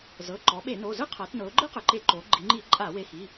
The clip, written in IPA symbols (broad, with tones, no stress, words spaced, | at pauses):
zɤ˩˧˩ ǃɔ˩˧ɓe˧˩˧ no˩˧˩ zɯ˥qʰɤ˩˧tnɤ˩˧ʊ̯ ɡ͡ǃɯ˥qɯ˩ǃe˧˩˧ ǃo˩˧ ɡ͡ǃi˩˧ŋ͡ǃi˧˩˧ ǃʼa˧˩˧we˩˧˩xi˩˧˩